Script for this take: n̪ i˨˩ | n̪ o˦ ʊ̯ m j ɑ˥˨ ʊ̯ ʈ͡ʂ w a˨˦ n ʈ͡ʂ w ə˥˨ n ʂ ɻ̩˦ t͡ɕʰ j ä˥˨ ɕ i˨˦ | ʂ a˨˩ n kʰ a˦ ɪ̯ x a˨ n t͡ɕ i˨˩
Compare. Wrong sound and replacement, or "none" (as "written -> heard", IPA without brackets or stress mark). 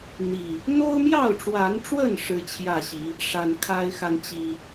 none